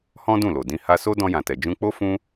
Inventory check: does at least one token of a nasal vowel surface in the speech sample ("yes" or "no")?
yes